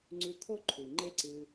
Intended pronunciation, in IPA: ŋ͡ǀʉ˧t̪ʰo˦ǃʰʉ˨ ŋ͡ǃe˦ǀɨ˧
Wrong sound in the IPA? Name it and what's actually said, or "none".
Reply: none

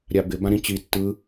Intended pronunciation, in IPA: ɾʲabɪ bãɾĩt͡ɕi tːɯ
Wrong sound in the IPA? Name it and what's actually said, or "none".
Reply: none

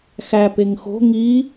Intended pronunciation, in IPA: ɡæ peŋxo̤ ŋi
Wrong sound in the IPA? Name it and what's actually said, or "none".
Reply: ɡ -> x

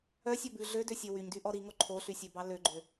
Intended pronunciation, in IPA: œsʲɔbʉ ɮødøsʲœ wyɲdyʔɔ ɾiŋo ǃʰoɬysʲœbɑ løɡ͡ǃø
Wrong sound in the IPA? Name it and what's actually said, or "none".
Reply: none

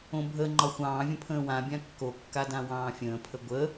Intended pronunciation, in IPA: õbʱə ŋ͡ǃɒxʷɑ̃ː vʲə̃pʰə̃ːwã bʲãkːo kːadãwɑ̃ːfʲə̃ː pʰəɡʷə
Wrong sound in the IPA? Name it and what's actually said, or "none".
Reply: none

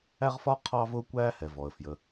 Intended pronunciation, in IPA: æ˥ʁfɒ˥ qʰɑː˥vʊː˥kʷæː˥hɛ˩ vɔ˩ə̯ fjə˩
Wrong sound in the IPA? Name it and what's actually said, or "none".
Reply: none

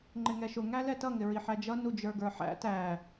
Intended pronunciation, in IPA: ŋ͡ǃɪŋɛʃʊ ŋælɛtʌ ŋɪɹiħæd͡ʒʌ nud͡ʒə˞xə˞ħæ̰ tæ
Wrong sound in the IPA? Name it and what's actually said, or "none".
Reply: x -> ɡ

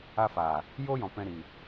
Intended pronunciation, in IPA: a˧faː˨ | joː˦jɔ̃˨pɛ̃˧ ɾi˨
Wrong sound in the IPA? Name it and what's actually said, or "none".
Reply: none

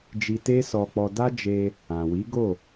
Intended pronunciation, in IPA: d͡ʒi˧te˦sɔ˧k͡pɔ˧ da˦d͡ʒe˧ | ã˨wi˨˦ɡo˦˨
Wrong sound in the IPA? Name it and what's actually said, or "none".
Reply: none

